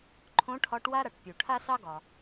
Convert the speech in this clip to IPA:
ǃʰõ˨˦ʈʰɒ˨˦ʈwa˦ɾa˩ʈ pʲu˩ʈʰa˦sɑ˦ɡɒ˩

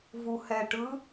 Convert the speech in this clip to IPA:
vuhɛʈɯ

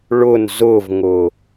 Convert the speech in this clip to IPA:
ɭʊn zʊvŋʊ

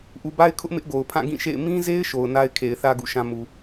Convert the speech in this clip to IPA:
ʔu˨ba˦ɪ̯kʰʊ˦ʔ mɪ˦ʔɡo˨ʊ̯pʰã˦˨ ɡĩ˦˨ʃḛ˦˨ɪ̯ mĩ˦ze˦ɪ̯ ʃo˨ʊ̯na˦ɪ̯kʰe˨ɪ̯θä˦ ɡṵ˦˨ʃã˦ mu˨

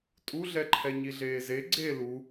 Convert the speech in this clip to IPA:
tʼuɮɛ ǃʰɛɲiɮeːze ɡ͡ǀe lu

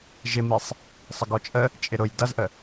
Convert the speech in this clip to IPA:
ʒɪmisˤ | sˤəɡɔt͡ʃʼə | t͡ʃʼɪɾʊj dʌzʔə

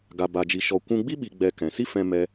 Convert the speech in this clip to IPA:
ɡa˧ba˧d͡ʒi˧ ʃɔ˧ kʷũ˧ɡ͡bi˦ ɓi˧ɡ͡bɛ˧ kɛ̃˨si˦ fɛ̃˦mɛ˦

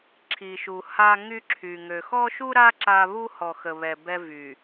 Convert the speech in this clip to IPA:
ǁʰi˨ʃu˨ ha˦ŋy˦ǁʰy˨ ŋø˨xɔ˦ʃu˦ɾa˦ ǁa˦ βu˦hɔ˨xə˨βɛ˨ bɛ˦vy˨

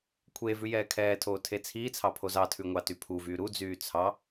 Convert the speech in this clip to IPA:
kʷʰeːvʉ jɛːkʰɛːtʰoː tʰet͡sʰiːt͡sʰɑ pʰozɑtʰʉ ŋʷɑtypʰuvyː ɾud͡zyː t͡sʰɑ

